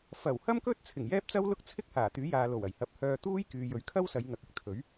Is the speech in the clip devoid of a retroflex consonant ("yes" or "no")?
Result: yes